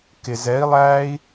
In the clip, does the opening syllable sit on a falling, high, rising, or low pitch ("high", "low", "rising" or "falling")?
low